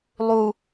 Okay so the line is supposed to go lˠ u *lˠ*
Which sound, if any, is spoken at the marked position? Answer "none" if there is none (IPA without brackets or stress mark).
none